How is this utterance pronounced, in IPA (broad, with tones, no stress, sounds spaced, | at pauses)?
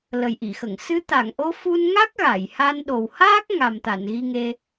l ə˨˩ j ʔ i˨˩˨ x ə˨˩˨ ŋ s ɨ˧˥ t̪ a˨˩˨ ŋ ʔ o˧˥ f u˧ n ŋ a˦˥ k̚ ɣ a˨˩˨ j h a˧ n ɗ o˨˩ w h aː˦˥ k̚ ŋ a˨˩ m t̪ a˨˩˨ n ɣ i˧ ŋ e˧